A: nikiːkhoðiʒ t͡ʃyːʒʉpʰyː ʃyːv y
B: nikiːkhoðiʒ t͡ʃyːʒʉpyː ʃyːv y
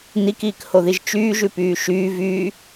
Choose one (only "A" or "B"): B